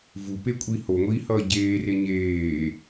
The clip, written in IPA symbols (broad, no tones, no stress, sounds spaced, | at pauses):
v u p e kʷʼ i h o ŋʷ iː h ʌː ɟ eː r e ɲ eː